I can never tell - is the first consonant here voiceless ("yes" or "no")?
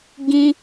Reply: no